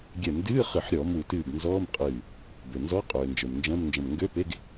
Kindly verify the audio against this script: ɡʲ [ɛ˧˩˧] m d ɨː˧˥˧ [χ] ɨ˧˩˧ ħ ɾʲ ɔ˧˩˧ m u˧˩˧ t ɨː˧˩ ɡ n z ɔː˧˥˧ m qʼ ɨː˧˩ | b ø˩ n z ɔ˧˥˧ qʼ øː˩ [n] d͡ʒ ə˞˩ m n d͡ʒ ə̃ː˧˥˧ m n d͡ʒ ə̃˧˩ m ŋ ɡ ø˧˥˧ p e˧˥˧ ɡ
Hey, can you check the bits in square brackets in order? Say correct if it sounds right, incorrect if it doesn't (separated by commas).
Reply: correct, correct, correct